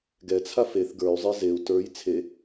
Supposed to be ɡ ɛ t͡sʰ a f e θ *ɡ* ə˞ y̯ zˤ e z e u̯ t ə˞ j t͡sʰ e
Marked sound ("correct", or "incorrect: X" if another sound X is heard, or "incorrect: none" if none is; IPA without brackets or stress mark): correct